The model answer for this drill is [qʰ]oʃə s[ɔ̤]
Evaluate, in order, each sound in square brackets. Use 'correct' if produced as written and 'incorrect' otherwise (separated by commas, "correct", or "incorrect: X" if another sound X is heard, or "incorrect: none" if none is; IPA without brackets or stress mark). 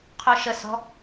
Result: correct, correct